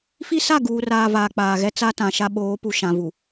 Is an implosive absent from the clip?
no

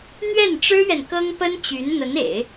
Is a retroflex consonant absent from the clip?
no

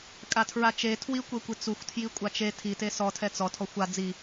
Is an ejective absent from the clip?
no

